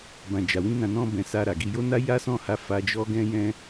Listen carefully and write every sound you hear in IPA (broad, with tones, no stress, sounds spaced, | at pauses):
b ã˨ d͡ʒ a˨ w ĩ˧ n ã˧ n ɔ̃˦ b ɛ̃˧ s a˧ ɾ a˨ ɡ i˧ j o˦ n a˦ j a˦ s ɔ̃˦˨ h a˧ f a˧ d͡ʒ ɔ˦ ɡ ɛ̃˦ j ɛ̃˦